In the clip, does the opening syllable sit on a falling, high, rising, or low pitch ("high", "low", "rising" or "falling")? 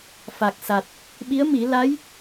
low